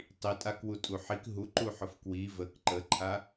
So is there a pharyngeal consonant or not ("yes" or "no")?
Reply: yes